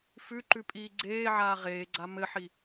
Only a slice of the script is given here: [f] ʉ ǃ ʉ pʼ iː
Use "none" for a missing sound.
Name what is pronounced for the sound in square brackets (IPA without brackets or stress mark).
f